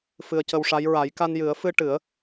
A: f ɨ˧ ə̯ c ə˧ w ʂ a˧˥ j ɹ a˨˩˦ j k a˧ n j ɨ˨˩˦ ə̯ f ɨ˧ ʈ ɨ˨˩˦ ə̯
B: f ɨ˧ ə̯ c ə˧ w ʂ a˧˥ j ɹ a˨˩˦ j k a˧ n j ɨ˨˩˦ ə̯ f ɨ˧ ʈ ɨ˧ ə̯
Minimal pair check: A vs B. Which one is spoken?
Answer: A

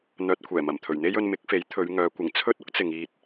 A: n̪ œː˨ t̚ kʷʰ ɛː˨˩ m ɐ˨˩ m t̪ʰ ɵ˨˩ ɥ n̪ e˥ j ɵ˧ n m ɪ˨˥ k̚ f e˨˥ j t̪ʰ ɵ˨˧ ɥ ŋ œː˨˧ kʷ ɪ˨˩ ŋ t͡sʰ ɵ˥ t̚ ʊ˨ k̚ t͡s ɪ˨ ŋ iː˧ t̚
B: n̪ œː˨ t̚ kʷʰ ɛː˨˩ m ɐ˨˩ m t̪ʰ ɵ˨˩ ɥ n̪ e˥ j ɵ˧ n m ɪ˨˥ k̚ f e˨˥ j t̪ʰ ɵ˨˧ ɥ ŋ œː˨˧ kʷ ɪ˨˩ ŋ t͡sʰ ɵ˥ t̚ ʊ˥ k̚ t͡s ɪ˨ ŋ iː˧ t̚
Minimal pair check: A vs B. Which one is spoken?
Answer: B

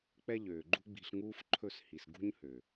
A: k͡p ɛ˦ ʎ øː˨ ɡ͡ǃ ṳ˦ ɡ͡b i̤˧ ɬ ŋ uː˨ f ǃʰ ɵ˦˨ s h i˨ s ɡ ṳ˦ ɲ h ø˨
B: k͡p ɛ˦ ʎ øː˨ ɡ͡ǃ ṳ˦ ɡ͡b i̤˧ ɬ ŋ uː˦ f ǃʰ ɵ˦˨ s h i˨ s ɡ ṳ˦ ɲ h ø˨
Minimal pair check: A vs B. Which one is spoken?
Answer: B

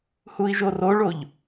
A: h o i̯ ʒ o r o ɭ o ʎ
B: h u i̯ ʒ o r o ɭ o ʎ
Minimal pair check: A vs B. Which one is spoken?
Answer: B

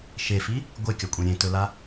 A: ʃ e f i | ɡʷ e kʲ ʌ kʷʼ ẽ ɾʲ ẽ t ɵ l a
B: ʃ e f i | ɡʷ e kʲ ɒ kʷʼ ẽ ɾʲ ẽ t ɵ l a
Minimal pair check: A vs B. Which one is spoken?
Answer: B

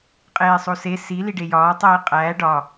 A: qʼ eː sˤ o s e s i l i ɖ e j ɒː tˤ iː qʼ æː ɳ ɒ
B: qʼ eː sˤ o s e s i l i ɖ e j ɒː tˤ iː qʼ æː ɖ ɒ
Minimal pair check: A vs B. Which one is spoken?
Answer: B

